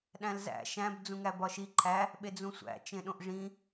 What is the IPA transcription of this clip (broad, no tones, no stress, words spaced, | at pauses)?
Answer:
ɗæ̃lzæ̰ ʃæ̃b d͡zũŋæbɒʃi ǃʰæ | ɓed͡zũsʷæ̰ t͡ʃẽɗõʔʐĩ